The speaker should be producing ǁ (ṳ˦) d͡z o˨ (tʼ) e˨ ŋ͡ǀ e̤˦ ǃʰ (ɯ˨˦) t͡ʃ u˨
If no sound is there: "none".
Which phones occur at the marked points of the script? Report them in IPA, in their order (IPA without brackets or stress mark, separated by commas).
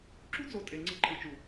ṳ˦, tʼ, ɯ˨